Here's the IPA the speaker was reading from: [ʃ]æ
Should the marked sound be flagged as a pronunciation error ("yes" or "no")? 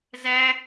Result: yes